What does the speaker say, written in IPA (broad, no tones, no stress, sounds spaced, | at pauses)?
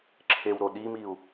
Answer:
ǁʰ e w ɾ o ɗ i m i u̯